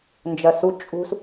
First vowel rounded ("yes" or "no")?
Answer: no